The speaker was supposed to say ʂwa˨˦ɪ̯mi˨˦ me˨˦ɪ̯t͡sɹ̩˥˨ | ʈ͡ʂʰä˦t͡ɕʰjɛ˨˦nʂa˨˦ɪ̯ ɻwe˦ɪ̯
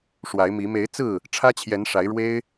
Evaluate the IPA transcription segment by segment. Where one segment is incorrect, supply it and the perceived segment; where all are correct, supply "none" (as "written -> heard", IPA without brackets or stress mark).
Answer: none